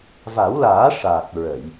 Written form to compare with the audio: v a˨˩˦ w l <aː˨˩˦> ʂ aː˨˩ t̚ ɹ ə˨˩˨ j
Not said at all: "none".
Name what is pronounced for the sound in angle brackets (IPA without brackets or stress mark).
aː˨˩˦